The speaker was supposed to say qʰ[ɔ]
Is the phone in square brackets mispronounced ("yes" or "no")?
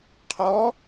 no